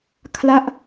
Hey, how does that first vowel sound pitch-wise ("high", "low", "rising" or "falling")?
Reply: falling